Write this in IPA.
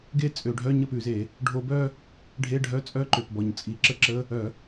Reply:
ɡe˥˧t͡sʼø˧˩˧ɖʱœ˧˥˧ ɲə˥˧pʉ˧˩˧ze˧˩˧ | ɖʱo˧bœ˥˧ | ɖʱe˧˥˧ɖʱœ˧˥˧t͡sʼœ˧˥˧ǃø˨˩p bɔ˨˩ɲt͡sʼi˧˩˧ǁə˥˧ǁə˧˥˧ | œ˧˩˧

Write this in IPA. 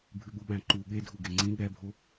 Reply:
bʱʉɠuɓæ̃ǃu ɠedʱu ɡeŋ͡ǀĩ ɠɛbʱo

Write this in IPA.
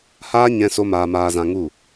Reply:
haː˦ ɲɛ̃˦so˦maː˧ maː˧zã˧ŋu˦˨

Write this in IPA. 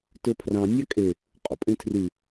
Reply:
tɵpʰrɑ̃ nʲɑkʼe | qʼo̰pʼẽtʰry

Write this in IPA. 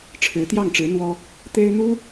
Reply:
ʈ͡ʂʰɻ̩˧˥t̪jɑ˥˩ŋʈ͡ʂɻ̩˧˥ n̪wɔ˥ | t̪e˥ɪ̯n̪u˥

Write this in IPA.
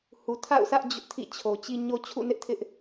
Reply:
hu˨tʰa̰˦˨ʊ̯sʰä˦ʔ d͡ʑʊ˦ʔtʰḭ˦˨ t͡ɕʰo˨t͡ɕi˦ ɲo˦t͡ɕʰṵ˦˨nɪ˦ʔtʰɪ˦ʔ

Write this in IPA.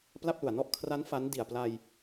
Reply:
pla˥˩p̚lu˨˩a̯nɔ˥˩ʔ kʰra˦˥n fa˦˥n di˨˩a̯pla˧j

